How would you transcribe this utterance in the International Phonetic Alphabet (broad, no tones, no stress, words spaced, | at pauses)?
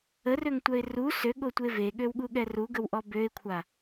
ərøŋtʷœɪ̯ ru søɠotʷe veɠøwɠuɠɛ ruɡəwʔɔ bøɪ̯kʷʰa